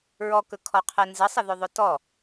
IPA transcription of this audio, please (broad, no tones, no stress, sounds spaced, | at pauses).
ɹ ɔ k ɵ kʰ ɔ qʰ ɛ n z ə sˤ ə ð ɵ ðˤ ɵ t ɔ